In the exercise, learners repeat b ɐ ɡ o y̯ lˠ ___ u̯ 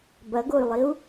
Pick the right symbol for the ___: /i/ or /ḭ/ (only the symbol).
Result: i